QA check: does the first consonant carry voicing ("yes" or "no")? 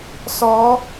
no